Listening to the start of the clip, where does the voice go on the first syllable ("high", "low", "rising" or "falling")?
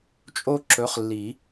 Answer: high